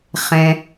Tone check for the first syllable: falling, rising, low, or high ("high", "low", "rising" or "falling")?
low